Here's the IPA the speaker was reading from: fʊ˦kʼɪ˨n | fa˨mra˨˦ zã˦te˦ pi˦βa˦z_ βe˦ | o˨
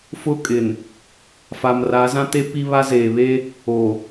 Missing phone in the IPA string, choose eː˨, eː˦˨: eː˨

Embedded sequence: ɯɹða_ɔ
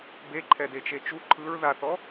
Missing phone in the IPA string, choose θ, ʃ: θ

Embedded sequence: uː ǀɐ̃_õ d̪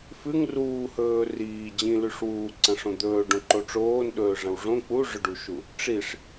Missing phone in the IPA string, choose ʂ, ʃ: ʂ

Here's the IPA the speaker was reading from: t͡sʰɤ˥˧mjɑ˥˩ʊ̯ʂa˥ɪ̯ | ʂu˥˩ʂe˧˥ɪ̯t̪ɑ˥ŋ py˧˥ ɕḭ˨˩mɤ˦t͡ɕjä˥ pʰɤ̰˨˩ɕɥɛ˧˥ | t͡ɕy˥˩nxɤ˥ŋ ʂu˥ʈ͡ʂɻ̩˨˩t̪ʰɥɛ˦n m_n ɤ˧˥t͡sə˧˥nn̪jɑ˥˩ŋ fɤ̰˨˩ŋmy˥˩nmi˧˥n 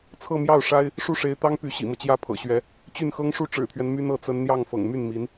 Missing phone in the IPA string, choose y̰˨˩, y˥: y˥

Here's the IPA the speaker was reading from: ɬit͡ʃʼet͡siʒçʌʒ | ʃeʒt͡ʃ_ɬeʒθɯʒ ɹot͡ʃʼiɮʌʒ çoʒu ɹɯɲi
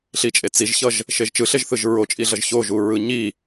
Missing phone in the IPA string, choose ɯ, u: ɯ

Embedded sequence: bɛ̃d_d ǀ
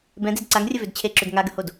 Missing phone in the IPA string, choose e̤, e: e̤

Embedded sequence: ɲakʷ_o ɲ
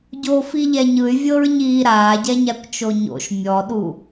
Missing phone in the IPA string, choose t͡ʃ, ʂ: t͡ʃ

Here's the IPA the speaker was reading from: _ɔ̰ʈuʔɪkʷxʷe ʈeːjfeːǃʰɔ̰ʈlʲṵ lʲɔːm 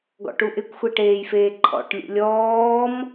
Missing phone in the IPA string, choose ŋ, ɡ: ɡ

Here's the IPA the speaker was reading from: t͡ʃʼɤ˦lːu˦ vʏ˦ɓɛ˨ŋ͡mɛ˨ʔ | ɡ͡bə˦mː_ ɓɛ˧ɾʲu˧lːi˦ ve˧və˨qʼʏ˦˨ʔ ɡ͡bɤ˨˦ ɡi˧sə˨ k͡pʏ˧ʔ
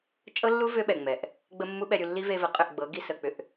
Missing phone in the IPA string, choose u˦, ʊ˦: u˦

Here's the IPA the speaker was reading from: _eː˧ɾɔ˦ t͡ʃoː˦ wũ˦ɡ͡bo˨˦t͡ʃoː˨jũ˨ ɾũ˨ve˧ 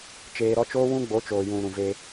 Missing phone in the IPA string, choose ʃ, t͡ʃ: t͡ʃ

